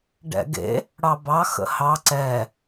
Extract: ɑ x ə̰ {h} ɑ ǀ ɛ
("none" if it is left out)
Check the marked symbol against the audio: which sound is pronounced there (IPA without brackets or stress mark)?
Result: h